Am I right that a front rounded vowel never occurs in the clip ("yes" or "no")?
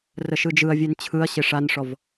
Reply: yes